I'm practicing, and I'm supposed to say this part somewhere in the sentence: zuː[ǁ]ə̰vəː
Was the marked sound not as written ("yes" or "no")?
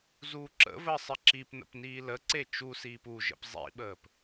no